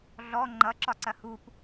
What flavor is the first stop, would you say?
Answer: click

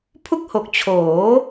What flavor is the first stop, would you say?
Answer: aspirated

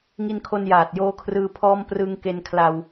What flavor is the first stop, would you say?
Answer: aspirated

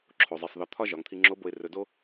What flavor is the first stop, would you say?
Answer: click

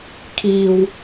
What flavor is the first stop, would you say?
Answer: aspirated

